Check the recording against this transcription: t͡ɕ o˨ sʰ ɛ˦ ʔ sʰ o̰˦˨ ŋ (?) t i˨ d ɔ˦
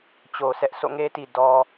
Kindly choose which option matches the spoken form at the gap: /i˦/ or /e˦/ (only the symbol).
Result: e˦